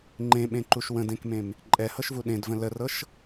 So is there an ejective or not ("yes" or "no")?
yes